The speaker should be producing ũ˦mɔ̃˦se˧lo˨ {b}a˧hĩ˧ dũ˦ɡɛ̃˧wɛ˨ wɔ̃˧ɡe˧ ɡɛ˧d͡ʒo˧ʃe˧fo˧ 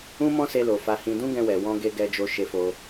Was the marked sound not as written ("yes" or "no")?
yes